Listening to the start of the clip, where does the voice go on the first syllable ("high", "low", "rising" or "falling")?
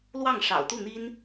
falling